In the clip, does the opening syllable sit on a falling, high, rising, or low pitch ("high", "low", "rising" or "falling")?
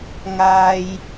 low